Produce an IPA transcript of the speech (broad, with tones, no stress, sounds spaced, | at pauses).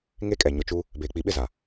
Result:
ŋ e˦ kʼ ɛ˨ ɲ ʊ˨ t͡ʃ u˦ | b eː˨ k͡p i˨ ɓ ɪ˦˨ z a˨